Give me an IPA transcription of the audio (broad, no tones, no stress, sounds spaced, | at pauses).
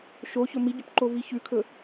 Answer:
ʃ o ç ɵ m i ɟ ɵ p ǃ o v i ç ʉ kʰ ɵ